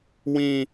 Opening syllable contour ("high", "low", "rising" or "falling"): high